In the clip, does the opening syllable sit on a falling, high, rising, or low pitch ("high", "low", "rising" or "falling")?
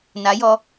rising